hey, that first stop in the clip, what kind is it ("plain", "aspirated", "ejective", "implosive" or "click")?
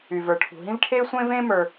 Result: aspirated